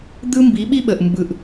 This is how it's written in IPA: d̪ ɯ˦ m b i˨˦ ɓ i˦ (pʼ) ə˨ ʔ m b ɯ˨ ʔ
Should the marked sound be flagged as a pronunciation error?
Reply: yes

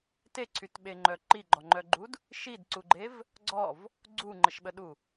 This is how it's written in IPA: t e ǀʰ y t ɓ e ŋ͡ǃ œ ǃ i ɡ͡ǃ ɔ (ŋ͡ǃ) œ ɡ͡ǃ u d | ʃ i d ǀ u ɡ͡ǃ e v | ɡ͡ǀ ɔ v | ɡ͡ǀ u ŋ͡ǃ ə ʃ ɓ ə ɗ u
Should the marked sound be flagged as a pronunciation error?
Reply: no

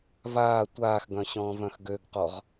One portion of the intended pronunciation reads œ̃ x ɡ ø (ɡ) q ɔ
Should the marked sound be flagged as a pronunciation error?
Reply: no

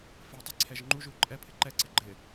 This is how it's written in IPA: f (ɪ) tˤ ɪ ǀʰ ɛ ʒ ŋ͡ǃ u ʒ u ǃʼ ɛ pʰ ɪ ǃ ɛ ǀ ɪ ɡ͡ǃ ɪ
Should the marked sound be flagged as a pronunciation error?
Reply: yes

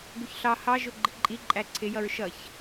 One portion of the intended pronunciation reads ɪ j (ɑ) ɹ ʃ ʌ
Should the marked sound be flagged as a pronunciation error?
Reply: yes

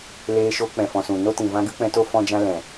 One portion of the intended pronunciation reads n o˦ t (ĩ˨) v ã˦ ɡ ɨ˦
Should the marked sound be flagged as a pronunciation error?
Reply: no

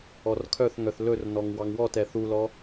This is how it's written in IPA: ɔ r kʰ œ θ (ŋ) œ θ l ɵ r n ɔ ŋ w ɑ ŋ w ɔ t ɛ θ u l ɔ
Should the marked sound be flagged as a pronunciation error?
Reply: no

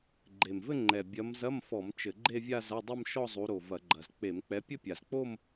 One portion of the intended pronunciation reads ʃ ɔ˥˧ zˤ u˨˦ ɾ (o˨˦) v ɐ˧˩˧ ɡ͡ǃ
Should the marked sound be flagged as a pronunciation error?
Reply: yes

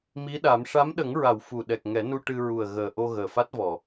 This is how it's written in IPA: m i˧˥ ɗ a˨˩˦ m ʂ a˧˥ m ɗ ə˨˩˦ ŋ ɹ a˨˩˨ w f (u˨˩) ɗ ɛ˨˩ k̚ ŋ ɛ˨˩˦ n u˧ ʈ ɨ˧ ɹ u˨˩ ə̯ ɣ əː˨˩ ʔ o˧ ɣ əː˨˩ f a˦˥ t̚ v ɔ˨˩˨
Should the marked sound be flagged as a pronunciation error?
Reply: no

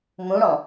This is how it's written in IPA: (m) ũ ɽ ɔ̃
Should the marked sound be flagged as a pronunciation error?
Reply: no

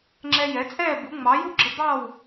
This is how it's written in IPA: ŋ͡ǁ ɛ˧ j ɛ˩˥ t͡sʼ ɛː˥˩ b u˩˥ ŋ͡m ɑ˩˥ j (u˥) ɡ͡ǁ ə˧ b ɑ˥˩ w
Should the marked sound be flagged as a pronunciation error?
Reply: no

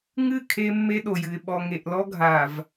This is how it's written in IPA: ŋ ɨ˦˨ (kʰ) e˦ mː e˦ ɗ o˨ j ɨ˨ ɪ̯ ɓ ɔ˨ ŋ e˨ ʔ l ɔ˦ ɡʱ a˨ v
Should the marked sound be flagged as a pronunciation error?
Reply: no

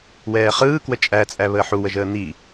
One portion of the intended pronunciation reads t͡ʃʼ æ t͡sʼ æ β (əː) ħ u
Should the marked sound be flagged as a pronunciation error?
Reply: no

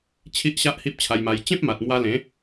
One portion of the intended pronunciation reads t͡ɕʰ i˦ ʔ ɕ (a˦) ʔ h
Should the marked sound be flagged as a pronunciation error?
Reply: no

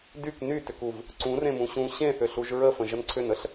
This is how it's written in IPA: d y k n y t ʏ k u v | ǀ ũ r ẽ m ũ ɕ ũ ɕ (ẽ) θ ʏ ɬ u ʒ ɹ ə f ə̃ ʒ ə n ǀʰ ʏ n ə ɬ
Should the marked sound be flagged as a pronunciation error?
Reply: no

